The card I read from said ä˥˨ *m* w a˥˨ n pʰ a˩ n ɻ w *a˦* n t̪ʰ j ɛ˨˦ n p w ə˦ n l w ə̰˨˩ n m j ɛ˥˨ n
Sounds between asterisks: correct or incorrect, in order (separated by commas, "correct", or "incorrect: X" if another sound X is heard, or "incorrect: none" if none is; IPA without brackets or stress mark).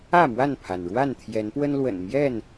correct, incorrect: a˥˨